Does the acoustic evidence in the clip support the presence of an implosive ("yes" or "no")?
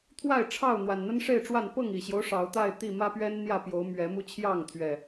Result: no